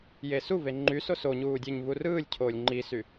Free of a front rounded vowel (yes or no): no